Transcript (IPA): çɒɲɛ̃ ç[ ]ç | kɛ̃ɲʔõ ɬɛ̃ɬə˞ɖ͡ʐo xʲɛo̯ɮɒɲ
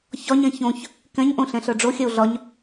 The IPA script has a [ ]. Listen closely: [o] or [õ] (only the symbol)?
õ